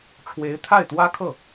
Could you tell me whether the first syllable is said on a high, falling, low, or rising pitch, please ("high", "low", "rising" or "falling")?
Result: rising